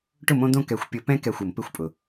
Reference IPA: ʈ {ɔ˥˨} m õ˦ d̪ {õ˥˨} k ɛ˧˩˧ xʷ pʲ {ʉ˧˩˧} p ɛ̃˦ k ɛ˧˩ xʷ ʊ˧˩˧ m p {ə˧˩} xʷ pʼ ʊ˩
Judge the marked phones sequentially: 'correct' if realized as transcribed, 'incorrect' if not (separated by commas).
incorrect, correct, incorrect, incorrect